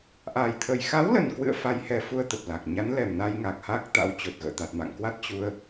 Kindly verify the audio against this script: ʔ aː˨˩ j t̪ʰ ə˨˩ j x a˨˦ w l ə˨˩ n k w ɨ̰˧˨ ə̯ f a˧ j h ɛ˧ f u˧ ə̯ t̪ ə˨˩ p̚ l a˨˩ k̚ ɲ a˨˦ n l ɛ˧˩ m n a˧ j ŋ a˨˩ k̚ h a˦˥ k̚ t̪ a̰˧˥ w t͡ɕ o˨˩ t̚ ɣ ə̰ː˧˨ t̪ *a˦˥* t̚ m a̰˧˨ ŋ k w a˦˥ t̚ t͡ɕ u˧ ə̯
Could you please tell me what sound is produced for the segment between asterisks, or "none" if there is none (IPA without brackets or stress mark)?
a˨˩